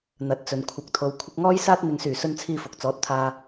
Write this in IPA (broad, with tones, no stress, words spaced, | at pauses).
n̪ɐ˨˥t̚t͡sɵ˨n kʷʰɐ˨k̚t̪ʰo˨w kʷʰɪ˧k̚ŋɔː˥jsaː˥t̚ n̪ɪ˨ŋsyː˨˩ sɵ˧nt͡sʰiː˧fʊ˨k̚t͡sɔː˨˥t̚ t̪ʰaː˨